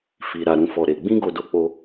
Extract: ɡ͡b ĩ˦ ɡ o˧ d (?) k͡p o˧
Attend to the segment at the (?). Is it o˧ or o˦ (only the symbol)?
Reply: o˧